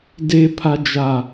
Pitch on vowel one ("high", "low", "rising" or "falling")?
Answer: low